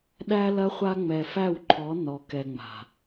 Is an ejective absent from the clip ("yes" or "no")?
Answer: yes